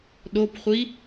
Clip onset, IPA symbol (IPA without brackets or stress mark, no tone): ɗ